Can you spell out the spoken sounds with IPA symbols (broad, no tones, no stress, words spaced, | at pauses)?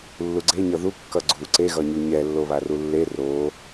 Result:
lːuɡ͡ǀeɲʌ ðu kːʌɡ͡ǀu ǀeɣʌɲu ɲɛ lːoβarulːe ro